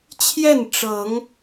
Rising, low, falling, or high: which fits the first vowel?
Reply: falling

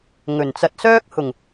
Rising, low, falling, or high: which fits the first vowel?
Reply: low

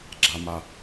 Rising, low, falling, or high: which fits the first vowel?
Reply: low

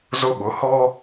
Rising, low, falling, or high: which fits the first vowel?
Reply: high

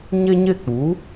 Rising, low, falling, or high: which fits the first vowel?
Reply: high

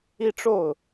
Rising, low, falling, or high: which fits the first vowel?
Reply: falling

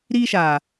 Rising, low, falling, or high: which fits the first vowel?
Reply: high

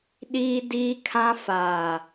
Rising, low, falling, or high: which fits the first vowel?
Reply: high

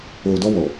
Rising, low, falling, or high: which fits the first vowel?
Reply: low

